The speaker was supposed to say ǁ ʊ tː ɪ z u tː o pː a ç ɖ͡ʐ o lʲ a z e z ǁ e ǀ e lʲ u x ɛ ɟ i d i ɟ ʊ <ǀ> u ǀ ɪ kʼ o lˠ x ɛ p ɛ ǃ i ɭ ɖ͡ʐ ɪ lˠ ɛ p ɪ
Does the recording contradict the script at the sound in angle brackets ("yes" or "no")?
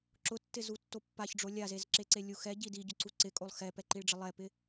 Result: no